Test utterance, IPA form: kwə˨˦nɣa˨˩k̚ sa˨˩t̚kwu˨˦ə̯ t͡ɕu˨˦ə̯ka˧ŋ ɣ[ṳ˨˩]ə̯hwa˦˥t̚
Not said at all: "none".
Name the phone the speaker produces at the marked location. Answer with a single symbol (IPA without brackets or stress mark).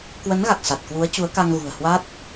ṳ˨˩